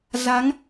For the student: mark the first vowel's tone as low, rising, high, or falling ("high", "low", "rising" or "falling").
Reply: rising